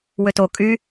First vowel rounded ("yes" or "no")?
yes